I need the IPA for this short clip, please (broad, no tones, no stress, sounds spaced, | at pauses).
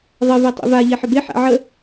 ðˤ ə v ɛ tˤ ḛ v a ʎ ɛ ħ ə b e ħ a̰ ʕ ə